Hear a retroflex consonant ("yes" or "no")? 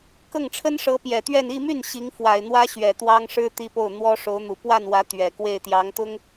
yes